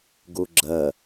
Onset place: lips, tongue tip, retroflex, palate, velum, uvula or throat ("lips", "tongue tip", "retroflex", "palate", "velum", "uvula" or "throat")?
velum